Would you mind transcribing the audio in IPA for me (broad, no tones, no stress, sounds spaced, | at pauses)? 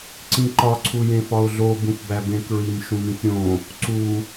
ǀ ĩ ǃ ɒ ǀʰ u j ẽ f ɒ ʊ̯ ɮ o b ũ f b æ b ẽ k ɹ i m ʃ ũ m ĩ f ɾʲ õ | ǀ u